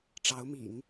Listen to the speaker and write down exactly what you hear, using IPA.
ʈ͡ʂɑ˧˥ʊ̯mḭ˨˩˦ŋ

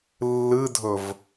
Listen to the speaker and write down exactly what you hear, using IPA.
lːɨdʱɵv

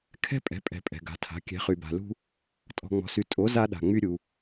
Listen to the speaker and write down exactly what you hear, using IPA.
kʰɛ̤˦pʼɛ̤˨˦pʼɛ̤˨ pʼɛ̤˨ɡa̤˨˦tʰa̤˨˦ kʲɛ̤˨˦χy˨ba̤˨lṳ˦ | tʼɔ̤˨ŋ͡mɔ̤˨sy˨ tʼo˨˦ za˦ɗa̤˨ŋ͡my˦ ɾʲu˨

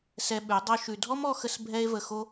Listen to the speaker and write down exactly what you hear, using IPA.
sɛ˧ɓʉ˨˦ dˤo˦ʃʉ˧ dʱɔ˦mɔ˧xə˧s bʱɛ˦e̯və˧xo˦

